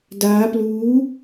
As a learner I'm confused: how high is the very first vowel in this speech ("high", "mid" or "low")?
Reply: low